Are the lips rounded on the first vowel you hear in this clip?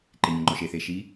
no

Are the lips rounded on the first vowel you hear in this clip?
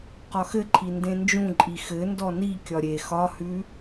yes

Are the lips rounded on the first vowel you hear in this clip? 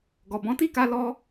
yes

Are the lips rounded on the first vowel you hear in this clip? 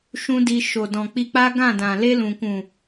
yes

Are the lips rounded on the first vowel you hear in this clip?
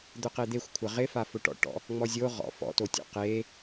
yes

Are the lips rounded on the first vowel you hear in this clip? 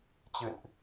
no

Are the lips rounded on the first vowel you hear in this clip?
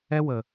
no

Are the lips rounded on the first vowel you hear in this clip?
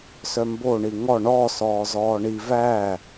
yes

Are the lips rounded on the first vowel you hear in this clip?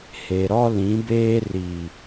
no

